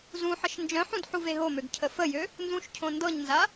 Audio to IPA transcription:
z ũ ħ ə ʃ n d͡ʒ œ̃ ħ ũ d ħ u v e ɦ o m ø ɡ cʰ ə f ə j ø | n z ũ ʃ cʰ õ n d ɤ ɲ n z a

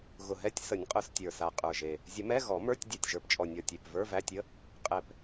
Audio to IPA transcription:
ɣ ʊ˨˩ ɦ ɛ˧˥˧ tʲ s ə˨˩˦ nʲ qʼ ʊ˨˩˦ s tʲ ə˞˨˩ s a˨˩ qʼ ə˞˨˩ ʒ e˨˩ | zʲ ə˨˩˦ m ɛ˧˥˧ ɣ ɔ˨˩˦ m ə˞˧˥˧ tʲ dʲ a˨˩ tʲ ʒ ə˞˨˩ p t͡ʃʼ ɔ˨˩ nʲ ɔ˨˩ tʲ e˨˩ p v ə˞˧˥˧ v æ˧˥˧ tʲ ə˧˥˧ | qʼ ɛ˨˩ p

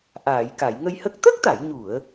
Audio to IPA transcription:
ʔ aː˨˩˨ j k a˨˩˨ j ŋ ə˧ j h ə˦˥ k̚ t̪ ə˦˥ k̚ t̪ a˨˩˨ j ɲ u˨˩˨ ə̯

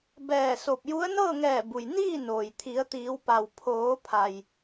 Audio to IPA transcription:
b ɛː˧˩ s o˧˩ p̚ j u˧˥ ə̯ n ɤː˥˨ ŋ ɛː˧˩ b u˩ j n iː˥˨ n oː˩ j t̪ʰ i˩˧ ə̯ t̪ iː˩˧ w p a˩ w pʰ oː˩˧ pʰ a˩ j

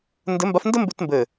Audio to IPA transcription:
n d ɘ˧˥ m b a˧˥ f n d ə˥ m b ʉ˥ t m b ɘ˦˨

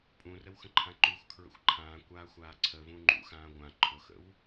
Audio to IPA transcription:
pʼ ũ r ə w x ə̃ ǃʰ ã ǃ u x kʰ ɹ ə̰ xʷ ǃʰ ãː kʷ aː xʷ aː ǀʰ ə v ũ ŋ͡ǃ ṵ x ãː ɡʷ ã ǃʰ ʊ x ə̰ w

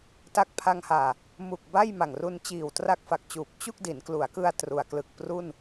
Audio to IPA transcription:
t a˥˩ k̚ pʰ a˧ ŋ h aː˨˩ | m u˨˩ k̚ b a˥˩ j m a˨˩ ŋ r u˧ n t͡ɕ iː˨˩ w t r a˦˥ k̚ f a˨˩ k̚ t͡ɕ uː˨˩ p̚ t͡ɕ u˥˩ k̚ d i˩˦ n k l u˩˦ a̯ k ɯ˧ a̯ t r u˨˩ a̯ k l ɯ˨˩ k̚ p r u˥˩ n

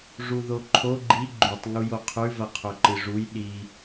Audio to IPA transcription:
ʐ u ð o ǃʰ o ɡ͡ǃ i ɡ͡ǃ ʉ tˤ ŋ u j o qʰ ʉ v ɐ qʰ ɵ ǃ ɨ ʐ u j ɗ i

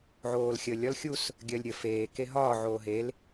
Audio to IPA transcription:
ʕ oː l xʲ ə lʲ ɒ l xʲ u s | ɡʲ ɜ lʲ ɾʲ ə f eː k e ɦ ɒː ʕ oː ɦ e l

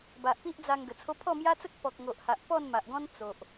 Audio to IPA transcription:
b a˨ ʔ p i˦ ʔ d͡z a˧ ŋ ɡ ə˨˩ t͡sʰ o˦ pʰ ɔ˥˧ m j a˦ t͡s ə˦ k̚ p ɔ˨ k̚ ŋ o˨ ʔ h a˨ ʔ p ɔ˥˧ n m a˨ ʔ ɡ ɔ̃˦ n t͡s o˨ ʔ

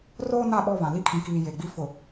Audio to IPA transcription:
r oː˦ n a˦˨ ɓ ɔ˦˨ β ã˨ l i˦ kʰ ĩ˨ k iː˨ j e˨ ɡ͡b i˦ f ʊ˨

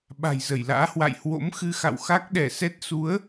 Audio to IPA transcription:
ɓ a̤˨˩ j z ə˧˩ j l a̰ː˧˥ h w a̰˧˨ j h w o̰˧˥ m x ɨ˧ x a̰˧˨ w x a˦˥ k̚ ɗ ɛ˧˩ s ɛ˦˥ t̚ s u˨˦ ə̯

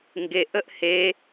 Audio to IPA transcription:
ŋ ɡ e ʔ ə ʔ h e

